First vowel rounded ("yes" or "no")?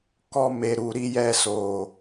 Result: yes